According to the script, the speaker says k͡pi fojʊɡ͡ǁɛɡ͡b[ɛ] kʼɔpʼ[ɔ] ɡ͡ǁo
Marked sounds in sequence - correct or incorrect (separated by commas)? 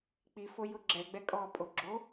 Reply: correct, incorrect